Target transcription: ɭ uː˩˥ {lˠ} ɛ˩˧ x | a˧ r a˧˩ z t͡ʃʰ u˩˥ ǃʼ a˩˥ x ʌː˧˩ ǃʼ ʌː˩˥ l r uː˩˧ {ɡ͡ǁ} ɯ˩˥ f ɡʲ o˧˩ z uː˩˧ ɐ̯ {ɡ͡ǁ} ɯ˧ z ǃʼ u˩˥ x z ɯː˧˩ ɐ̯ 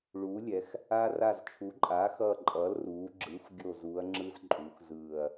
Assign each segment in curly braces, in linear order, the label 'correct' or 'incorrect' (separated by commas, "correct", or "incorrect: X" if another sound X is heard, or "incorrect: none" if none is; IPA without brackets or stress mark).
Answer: incorrect: lʲ, correct, incorrect: ŋ͡ǁ